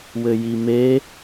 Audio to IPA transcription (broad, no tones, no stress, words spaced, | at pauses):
wɘjime